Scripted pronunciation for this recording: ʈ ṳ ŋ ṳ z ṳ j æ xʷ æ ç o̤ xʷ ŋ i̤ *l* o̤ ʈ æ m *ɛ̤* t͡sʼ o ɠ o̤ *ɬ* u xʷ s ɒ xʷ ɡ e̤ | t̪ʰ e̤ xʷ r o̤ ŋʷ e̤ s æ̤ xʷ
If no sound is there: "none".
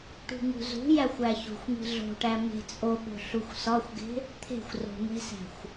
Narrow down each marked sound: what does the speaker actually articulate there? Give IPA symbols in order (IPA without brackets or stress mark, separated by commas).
ɮ, e̤, ɬ